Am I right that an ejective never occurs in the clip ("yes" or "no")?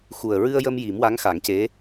yes